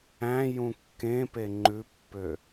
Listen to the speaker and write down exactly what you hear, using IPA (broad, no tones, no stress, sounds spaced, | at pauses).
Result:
æ̃ j ũ kː ẽ p e ŋ͡ǃ ʉ pː ø